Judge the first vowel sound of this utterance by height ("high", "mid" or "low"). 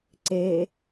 mid